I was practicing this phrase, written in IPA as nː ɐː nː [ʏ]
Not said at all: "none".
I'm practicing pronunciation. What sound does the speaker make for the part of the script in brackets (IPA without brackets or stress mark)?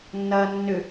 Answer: ʏ